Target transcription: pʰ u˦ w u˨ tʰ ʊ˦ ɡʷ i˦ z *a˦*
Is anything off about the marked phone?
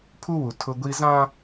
yes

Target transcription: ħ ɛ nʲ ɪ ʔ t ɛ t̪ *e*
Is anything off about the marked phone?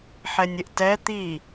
yes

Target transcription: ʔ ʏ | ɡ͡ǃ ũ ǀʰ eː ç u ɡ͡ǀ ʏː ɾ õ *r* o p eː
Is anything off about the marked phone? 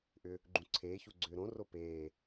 no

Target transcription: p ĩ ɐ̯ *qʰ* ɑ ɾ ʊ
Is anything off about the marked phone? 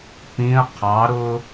no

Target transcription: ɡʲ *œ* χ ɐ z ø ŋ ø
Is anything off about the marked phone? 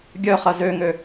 no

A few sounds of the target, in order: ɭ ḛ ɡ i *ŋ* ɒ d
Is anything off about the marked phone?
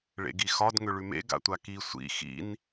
yes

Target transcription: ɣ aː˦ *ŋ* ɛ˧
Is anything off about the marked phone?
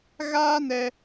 yes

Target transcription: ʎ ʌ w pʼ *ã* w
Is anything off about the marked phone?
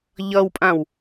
no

